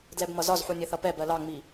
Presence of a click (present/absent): absent